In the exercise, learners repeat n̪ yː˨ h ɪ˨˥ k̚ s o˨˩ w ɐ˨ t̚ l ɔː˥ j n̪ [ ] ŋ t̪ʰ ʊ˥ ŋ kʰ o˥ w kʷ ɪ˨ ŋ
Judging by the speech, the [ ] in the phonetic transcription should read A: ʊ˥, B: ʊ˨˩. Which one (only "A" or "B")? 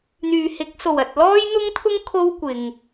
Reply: A